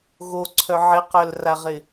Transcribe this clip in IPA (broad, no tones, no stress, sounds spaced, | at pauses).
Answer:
ɣ o ǀʰ œ ʕ ɪ q œ l r a ʁ ɪ